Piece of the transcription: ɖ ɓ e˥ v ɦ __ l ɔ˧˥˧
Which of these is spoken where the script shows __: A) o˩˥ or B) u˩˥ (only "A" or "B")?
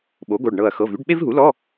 B